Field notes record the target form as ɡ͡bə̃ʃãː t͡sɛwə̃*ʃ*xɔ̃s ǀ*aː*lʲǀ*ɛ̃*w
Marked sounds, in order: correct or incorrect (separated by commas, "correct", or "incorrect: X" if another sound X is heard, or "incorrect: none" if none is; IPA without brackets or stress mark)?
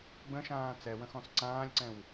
incorrect: none, incorrect: ãː, correct